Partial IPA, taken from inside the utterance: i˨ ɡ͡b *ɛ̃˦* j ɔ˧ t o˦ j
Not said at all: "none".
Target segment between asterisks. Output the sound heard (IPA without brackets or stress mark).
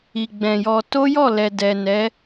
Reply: ɛ̃˨